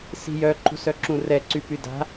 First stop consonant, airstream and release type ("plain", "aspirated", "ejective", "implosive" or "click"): click